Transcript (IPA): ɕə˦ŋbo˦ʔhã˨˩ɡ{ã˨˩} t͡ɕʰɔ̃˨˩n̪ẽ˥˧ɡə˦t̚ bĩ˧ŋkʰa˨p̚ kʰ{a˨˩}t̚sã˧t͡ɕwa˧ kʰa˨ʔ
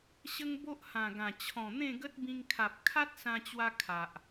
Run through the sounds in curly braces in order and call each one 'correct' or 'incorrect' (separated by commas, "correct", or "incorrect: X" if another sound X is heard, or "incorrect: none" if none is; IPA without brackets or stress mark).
correct, incorrect: a˦